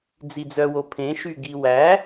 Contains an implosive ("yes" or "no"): no